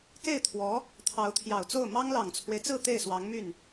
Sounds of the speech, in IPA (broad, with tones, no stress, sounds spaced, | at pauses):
k e˥˩ ɪ̯ t̪ʰ w ɔ˧˥ | t̪ʰ ɑ˧˥ ʊ̯ t̪ʰ j ɑ˨˩ ʊ̯ t͡s o˥˩ ʊ̯ m ɑ˥ ŋ l ɑ˨˩ ŋ t͡sʰ w e˦ ɪ̯ t͡s ɹ̩˥˧ t̪ e˥˩ ɪ̯ s w ɑ˧˥ ŋ m y˥˩ n